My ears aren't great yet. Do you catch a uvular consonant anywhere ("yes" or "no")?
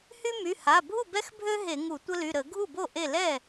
no